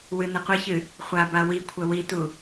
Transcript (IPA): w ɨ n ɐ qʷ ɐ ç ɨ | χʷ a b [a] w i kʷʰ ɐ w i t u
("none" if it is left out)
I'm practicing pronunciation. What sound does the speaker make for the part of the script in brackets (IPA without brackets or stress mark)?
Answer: a